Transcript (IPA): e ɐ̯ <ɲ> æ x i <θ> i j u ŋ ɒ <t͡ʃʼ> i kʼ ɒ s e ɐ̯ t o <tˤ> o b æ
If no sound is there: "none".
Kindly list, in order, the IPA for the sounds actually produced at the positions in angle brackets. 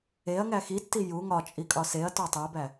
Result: ŋ, tː, t͡ʃʼ, tˤ

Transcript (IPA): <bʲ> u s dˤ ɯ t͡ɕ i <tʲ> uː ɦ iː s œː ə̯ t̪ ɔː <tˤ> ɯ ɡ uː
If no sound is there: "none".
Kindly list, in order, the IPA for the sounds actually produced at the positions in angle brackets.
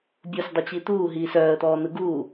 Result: bʲ, t̪, n̪

